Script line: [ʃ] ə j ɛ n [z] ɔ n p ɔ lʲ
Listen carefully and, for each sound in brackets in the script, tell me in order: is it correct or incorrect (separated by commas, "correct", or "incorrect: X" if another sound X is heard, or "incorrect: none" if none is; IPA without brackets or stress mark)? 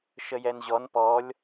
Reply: correct, incorrect: ʑ